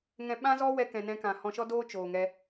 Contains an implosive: yes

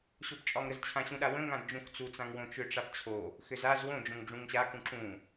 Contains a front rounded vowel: yes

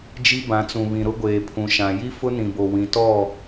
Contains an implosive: no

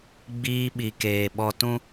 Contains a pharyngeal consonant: no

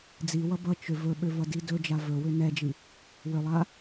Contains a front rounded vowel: yes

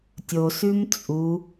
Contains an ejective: yes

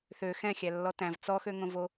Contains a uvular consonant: no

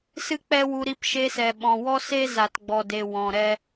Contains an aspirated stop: no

